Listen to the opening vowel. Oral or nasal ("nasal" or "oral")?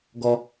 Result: oral